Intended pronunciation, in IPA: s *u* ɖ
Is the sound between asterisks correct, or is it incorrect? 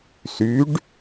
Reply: incorrect